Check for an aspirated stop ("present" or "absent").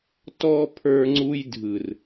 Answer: present